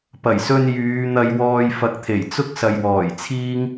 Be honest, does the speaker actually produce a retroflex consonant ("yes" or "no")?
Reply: no